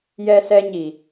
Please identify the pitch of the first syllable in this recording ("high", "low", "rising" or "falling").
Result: high